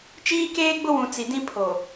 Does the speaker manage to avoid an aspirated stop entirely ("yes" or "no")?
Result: no